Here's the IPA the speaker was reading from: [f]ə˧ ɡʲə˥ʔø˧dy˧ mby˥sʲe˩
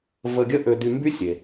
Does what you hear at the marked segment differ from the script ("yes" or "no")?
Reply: yes